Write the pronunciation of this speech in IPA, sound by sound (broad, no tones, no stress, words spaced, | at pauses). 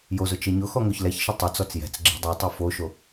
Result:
jozʊ t͡ʃeɲʊxɔ ŋoçlɛçʃɪ tˤɪt͡sɔt͡s jɛ̤t͡s ɡ͡ǁe̤dˤɛtˤu foʃo